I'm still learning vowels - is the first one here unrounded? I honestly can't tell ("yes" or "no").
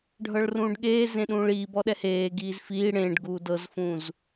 yes